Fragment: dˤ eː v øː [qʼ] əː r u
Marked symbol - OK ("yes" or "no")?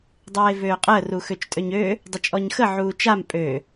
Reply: yes